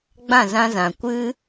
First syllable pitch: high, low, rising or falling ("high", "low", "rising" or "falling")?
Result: falling